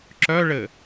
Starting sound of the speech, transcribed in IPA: ǁ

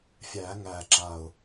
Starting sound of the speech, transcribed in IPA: fʲ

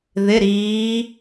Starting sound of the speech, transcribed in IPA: ð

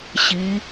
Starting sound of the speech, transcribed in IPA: ɕ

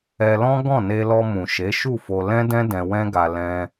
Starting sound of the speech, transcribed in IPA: ɛ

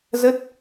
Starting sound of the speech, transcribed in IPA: z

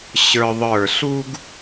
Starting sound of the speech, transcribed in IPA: ɕ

